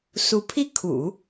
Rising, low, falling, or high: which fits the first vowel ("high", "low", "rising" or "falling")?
rising